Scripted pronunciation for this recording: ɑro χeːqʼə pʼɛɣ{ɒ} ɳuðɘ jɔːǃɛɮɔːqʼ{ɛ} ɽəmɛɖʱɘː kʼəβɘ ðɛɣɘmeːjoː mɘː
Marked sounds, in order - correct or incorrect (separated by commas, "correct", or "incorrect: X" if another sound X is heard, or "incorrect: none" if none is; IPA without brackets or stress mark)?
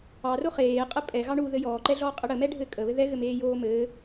incorrect: ɑ, incorrect: ɘ